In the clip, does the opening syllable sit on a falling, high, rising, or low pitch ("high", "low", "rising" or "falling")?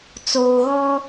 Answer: low